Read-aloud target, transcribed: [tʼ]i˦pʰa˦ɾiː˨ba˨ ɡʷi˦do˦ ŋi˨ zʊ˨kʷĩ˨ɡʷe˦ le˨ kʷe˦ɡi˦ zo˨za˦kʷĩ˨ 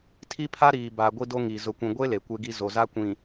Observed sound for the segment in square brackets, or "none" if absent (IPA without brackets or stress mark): tʰ